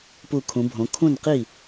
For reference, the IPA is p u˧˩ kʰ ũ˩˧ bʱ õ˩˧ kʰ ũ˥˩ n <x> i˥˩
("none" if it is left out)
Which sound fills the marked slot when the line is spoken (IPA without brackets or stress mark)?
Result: q